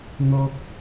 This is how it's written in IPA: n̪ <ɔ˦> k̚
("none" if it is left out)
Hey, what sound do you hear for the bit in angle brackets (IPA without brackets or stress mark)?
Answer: ɔ˦